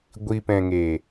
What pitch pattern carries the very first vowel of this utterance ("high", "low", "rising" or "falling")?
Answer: low